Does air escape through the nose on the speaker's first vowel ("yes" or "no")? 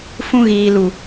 yes